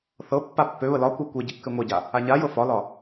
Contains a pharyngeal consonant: no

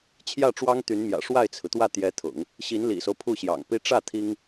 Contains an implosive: no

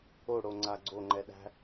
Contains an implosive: yes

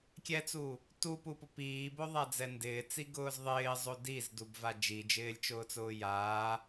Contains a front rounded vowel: no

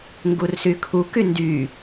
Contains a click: no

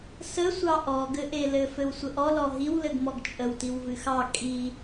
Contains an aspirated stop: no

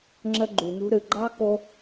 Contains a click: yes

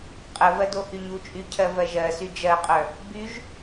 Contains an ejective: yes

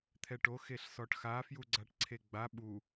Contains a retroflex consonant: yes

